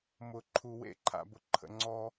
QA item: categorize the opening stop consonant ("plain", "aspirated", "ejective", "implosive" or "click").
click